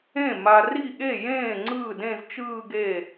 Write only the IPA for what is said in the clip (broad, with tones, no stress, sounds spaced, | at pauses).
ẽ˥˩ m a˨ r i˥˩ ɠ e˥˩ j ẽː˥˩ ŋ͡ǀ ɯː˥˩ d ẽ˥˧ z t͡ʃ ɯː˥˧ ɡ e˥˩